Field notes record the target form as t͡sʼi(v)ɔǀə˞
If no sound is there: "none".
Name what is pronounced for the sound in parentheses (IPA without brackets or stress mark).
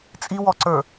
w